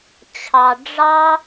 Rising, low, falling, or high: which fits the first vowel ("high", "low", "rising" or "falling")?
low